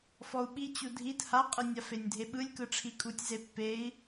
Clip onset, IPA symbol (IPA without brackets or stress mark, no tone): f